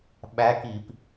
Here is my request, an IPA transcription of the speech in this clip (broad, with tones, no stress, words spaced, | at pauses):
ɓæ˧˥ki˧˩˧p